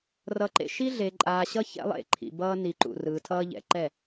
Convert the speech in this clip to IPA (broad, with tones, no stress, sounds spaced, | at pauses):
r ʌ˨ ǃ ḛ˨ ʃ i˦ ɮ e˨ ǃʼ aː˨ ɕ ʌ˦ ç ɛ̰˦ lˠ ḛ˦˨ ǃʰ ḭ˨ b ʌː˦ n i˨ ǃ ṵ˨ r ɯː˨ tʰ ʌː˦ ʎ ɛ̰˨ ǃ ɛ˦˨